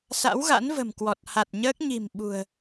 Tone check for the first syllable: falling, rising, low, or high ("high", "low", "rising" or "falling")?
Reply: rising